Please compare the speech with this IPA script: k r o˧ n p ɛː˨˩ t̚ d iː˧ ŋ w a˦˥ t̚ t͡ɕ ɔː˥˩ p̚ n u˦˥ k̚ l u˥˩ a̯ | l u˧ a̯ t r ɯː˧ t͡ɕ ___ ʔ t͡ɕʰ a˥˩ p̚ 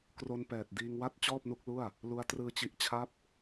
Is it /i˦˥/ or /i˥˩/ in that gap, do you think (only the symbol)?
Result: i˦˥